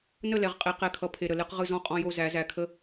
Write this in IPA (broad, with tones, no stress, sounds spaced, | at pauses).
n ə˦˨ l ɛ˨ ʁ qʼ e˨˦ q ɛ˨ kʰ ʌ˨ pʰ e˨ ɾ ə˨ l ɨ˦ q ʁ ɯ˦ z ɔ̃˦ qʼ ɔ̃˦ j o˦ z æ˨˦ z æ˨ kʰ ə˦